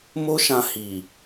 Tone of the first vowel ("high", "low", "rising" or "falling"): high